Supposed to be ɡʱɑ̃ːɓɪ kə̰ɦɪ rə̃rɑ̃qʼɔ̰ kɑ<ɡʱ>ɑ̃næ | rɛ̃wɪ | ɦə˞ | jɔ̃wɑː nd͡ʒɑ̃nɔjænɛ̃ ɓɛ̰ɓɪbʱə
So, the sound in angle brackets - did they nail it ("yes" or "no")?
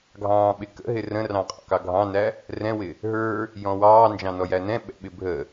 yes